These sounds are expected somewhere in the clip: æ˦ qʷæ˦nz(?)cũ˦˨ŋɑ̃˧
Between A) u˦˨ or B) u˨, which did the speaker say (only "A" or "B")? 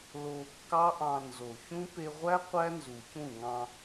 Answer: B